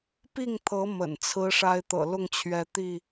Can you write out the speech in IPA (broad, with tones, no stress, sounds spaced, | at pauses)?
p i˥˨ ŋ t̪ʰ ɤ˨˦ m ə̰˨˩ n t͡sʰ ɹ̩˦ ʂ a˦ ɪ̯ t̪ ɤ̰˨˩ l ʊ˥˨ ŋ t͡ɕʰ ɥ ɛ˨˦ t̪ i˥˨